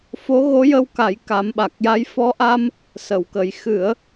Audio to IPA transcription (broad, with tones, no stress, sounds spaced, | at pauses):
f o˧˥ ɣ o˧˥ j ə˧ w k a˨˩˦ j k a˨˩˦ m ɓ a˨˩ k̚ j a˧˥ j f ɔ˧˥ ʔ a˧ m | s ə˨˩˨ w k ə˨˩ j x ɨ˨˩˦ ə̯